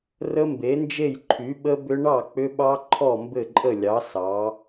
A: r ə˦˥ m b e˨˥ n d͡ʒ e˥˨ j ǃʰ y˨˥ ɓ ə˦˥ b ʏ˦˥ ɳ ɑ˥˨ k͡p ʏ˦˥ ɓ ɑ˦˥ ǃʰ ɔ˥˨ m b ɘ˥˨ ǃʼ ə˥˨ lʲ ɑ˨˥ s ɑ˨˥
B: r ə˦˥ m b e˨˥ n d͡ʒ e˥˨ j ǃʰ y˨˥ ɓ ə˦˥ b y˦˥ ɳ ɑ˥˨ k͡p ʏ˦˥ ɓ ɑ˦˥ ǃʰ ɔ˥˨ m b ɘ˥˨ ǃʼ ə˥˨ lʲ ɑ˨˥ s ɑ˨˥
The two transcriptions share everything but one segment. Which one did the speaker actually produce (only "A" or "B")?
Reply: A